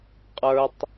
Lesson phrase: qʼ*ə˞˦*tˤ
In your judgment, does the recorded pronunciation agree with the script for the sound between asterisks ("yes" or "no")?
yes